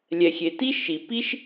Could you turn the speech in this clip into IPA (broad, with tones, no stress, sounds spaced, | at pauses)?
lʲ ɛ˨ xʲ e˨ t i˥ ʃ i˨ p i˥ ʃ